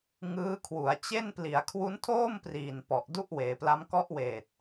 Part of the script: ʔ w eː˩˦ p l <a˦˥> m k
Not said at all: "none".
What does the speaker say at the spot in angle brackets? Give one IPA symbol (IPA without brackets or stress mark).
a˦˥